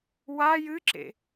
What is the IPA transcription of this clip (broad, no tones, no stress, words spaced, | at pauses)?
wa jɨǁḛ